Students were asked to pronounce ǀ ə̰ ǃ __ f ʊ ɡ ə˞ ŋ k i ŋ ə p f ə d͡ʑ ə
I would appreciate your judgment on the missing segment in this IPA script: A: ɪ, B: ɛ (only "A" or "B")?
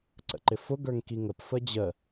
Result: A